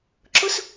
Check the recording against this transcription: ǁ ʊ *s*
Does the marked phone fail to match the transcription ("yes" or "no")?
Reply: no